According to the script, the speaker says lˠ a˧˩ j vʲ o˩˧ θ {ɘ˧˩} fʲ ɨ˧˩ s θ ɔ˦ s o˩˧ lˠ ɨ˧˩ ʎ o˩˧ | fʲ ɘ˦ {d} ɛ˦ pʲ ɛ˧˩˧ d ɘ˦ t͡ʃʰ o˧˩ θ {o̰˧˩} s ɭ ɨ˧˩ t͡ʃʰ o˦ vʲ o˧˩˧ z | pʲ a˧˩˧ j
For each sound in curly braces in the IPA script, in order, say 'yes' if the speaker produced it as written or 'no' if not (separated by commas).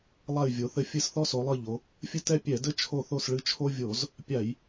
yes, no, no